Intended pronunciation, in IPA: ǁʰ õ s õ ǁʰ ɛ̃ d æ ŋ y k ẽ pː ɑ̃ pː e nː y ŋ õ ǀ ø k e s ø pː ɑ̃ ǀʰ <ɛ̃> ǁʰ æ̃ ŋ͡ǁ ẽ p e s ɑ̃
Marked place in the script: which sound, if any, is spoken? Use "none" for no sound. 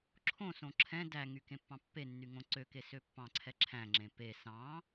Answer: ɛ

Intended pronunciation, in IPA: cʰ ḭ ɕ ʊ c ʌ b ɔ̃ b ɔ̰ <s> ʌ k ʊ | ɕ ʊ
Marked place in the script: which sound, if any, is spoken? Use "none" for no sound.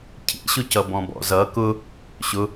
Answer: z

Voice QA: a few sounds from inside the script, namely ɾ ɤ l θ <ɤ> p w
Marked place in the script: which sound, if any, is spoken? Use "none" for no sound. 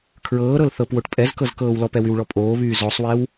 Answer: ɤ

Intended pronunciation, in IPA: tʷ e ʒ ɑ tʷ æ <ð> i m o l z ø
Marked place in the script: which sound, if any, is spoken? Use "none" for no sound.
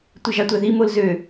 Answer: ð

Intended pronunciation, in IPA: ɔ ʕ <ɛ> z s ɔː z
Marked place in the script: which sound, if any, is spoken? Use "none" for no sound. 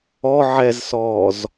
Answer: ɛ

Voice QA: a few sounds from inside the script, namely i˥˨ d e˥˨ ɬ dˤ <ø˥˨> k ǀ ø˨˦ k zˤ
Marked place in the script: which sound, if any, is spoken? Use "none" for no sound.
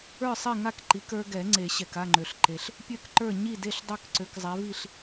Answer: ø˥˨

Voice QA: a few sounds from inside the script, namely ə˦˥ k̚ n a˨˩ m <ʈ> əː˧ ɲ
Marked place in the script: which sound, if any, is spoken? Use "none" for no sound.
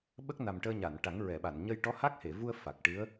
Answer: ʈ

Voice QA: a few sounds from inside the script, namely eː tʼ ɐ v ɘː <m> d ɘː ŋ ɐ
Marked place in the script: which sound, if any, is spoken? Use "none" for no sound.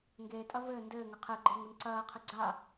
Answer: n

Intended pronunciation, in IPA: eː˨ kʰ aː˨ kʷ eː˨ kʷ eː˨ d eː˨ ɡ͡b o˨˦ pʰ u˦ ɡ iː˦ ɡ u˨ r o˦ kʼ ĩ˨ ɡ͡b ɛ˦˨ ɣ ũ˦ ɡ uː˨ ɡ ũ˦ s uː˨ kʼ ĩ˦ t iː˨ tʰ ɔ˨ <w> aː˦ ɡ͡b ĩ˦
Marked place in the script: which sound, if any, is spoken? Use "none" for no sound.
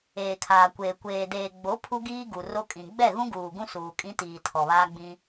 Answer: β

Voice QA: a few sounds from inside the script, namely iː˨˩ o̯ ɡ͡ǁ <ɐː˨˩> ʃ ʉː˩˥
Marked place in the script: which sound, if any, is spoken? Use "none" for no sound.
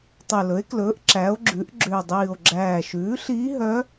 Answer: æː˨˩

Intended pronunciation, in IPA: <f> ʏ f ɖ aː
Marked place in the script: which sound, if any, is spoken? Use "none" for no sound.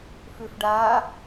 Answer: f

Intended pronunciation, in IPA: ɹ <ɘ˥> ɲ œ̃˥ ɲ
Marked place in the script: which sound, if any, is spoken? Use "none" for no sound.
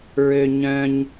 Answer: ø˥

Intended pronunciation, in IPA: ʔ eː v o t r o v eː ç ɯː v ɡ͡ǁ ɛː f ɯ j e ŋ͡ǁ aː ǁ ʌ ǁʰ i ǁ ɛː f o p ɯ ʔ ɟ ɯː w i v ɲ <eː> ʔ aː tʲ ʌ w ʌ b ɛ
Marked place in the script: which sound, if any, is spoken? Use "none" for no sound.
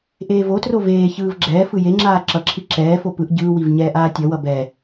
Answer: ɛː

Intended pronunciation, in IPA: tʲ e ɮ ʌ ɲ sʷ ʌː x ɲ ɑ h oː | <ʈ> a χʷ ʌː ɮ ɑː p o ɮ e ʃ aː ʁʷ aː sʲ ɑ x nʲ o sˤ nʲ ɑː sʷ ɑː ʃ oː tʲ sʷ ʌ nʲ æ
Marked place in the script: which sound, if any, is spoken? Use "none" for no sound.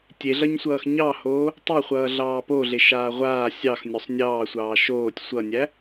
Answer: tˤ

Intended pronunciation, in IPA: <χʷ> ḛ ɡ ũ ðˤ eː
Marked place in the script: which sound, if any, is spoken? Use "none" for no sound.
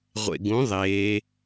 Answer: ʁʷ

